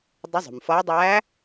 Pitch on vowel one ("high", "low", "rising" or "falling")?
rising